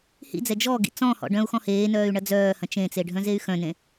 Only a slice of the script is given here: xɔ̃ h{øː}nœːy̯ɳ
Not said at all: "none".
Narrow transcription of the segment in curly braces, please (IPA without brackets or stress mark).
eː